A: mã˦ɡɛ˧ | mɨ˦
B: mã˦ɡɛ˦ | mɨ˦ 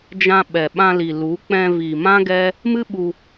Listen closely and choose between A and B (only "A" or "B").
B